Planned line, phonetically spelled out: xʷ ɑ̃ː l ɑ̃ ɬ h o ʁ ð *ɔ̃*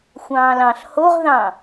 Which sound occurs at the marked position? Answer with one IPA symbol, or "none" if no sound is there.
ɑ̃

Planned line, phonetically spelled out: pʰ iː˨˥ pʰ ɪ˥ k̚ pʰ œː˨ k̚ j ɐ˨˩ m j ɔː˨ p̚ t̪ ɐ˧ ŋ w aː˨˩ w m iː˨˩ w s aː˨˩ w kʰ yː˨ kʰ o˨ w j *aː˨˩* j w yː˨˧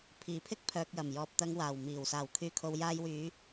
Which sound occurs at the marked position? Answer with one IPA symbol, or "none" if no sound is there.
aː˧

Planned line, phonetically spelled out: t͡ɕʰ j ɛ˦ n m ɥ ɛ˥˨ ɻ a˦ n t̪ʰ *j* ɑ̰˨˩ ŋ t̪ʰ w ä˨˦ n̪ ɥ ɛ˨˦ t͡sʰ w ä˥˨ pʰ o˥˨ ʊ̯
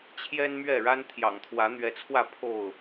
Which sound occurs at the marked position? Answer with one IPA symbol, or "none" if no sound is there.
j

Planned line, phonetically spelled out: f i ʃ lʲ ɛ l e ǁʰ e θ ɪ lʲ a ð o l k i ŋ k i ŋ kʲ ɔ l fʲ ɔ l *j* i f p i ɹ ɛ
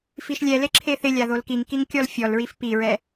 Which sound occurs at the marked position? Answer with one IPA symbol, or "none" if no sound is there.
ɹ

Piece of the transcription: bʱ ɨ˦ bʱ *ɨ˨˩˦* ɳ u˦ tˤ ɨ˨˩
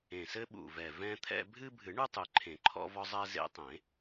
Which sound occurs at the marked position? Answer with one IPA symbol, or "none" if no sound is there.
ɨ˨˩˦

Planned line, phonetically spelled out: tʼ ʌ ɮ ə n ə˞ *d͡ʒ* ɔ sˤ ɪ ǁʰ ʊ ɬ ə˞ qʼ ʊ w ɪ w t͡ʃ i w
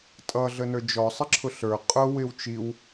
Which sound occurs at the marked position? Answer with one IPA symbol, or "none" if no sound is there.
d͡ʒ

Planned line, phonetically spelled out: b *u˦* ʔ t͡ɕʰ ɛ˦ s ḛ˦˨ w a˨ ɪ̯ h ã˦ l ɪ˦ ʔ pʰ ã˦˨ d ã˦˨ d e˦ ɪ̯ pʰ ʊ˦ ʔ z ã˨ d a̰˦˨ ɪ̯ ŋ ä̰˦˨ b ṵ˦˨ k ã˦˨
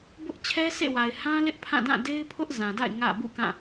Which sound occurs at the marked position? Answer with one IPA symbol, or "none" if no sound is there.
ʊ˦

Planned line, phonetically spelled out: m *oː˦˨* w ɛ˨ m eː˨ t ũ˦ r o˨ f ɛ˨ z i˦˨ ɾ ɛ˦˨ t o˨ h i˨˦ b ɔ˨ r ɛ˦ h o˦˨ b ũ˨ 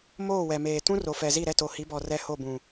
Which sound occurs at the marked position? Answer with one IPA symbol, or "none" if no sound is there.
oː˦˨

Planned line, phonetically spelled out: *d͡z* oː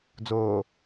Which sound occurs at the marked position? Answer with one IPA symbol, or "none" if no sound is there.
d͡z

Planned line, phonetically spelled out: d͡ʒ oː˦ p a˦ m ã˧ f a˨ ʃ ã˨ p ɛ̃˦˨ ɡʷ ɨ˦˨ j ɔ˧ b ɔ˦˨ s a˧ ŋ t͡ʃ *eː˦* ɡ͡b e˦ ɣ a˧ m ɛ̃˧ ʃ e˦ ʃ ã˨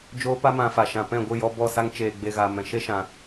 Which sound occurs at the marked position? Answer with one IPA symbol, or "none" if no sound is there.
eː˨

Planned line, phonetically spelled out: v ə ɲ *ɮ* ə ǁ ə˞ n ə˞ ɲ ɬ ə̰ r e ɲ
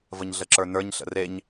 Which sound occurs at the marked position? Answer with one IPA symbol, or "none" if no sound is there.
ɮ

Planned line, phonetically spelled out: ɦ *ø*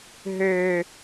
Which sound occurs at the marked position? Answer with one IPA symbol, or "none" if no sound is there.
ø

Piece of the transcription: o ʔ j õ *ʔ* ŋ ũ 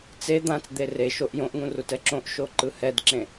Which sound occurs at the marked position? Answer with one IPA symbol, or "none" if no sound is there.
ʔ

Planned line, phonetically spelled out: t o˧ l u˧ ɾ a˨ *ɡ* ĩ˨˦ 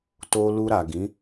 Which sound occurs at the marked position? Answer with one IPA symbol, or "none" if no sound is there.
ɡ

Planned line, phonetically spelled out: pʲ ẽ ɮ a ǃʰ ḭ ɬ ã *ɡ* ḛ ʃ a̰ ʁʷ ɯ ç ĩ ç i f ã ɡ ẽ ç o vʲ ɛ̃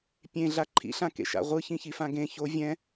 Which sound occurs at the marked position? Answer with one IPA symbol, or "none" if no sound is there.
k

